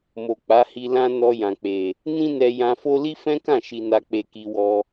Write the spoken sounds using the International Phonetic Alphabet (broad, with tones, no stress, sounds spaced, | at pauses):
m o˨ k͡p a˨˦ h i˧ l ã˦ n ɔ˧ j ã˨ k͡p e˨ | n ĩ˦ n ɛ˧ j ã˧ f o˦ l i˦ f ɛ̃˦ k ã˦˨ ʃ i˧ n a˧ k͡p e˧ k i˧ w ɔ˧